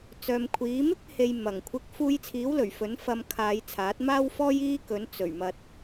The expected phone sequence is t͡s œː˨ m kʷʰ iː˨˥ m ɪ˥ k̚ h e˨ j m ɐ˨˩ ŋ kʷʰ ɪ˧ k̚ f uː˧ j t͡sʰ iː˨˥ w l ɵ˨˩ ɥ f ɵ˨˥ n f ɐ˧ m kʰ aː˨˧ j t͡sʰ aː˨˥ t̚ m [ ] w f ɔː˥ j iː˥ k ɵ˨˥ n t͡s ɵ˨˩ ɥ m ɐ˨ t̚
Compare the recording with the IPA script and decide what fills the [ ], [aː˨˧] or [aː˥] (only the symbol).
aː˥